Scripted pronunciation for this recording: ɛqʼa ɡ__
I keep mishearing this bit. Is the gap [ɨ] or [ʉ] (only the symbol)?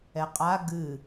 ɨ